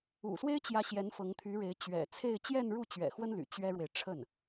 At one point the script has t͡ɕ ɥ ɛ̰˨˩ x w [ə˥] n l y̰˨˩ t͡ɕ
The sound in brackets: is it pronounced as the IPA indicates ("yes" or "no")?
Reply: yes